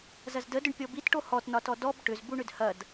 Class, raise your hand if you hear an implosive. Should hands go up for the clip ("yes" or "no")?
no